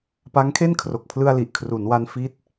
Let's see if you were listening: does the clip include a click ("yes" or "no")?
no